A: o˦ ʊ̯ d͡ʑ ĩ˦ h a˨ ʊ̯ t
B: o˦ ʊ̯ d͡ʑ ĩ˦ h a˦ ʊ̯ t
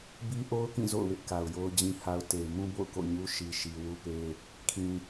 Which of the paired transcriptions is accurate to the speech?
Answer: B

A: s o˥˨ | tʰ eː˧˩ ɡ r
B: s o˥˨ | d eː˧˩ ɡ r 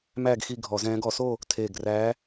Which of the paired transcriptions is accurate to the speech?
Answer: A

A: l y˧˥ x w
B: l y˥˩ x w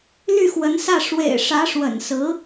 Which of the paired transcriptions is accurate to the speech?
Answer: B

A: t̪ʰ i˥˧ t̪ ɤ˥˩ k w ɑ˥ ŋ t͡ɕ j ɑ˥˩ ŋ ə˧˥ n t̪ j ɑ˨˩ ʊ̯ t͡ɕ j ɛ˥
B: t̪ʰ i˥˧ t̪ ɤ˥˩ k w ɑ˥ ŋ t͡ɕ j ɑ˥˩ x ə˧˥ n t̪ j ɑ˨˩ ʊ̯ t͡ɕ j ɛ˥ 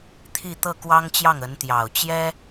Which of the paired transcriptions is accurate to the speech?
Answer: A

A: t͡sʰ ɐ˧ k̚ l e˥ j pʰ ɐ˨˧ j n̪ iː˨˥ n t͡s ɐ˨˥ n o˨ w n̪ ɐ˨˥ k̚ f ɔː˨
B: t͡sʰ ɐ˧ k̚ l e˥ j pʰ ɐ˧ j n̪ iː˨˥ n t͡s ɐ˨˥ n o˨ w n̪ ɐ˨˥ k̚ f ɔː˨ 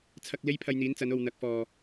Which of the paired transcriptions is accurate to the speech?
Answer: B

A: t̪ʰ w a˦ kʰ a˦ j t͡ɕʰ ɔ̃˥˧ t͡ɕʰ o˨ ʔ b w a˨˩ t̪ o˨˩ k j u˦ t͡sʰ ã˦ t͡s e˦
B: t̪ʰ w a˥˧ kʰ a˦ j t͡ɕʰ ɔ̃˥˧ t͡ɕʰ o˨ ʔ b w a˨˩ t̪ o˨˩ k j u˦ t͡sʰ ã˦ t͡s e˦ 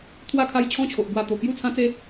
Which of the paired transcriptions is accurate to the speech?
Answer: B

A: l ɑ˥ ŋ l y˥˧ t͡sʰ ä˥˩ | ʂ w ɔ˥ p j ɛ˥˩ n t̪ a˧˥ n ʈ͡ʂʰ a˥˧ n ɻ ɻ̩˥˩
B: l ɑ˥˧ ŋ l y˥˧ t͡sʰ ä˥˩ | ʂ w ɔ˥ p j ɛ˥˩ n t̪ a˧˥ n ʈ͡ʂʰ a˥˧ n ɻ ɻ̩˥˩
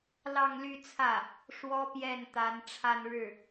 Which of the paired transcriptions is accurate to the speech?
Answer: B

